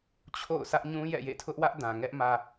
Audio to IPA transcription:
t͡ɕʰ o̰˦˨ ʊ̯ s ä˦ ʔ ɲ ũ˦ j ɛ̰˦˨ j ḛ˦˨ tʰ ʊ˦ ʔ w ä˦ ʔ d ã˨ ŋ ɛ˦ ʔ m ä˨

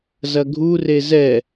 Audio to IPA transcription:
z ɐ ɡʱ u r e z ɛ

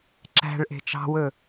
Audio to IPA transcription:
ǁ æ̤ ɭ ʔ e̤ t͡ʃ ɑ̤ w ɵ

